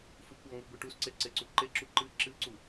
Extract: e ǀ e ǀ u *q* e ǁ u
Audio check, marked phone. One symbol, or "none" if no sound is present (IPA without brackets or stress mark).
ǃ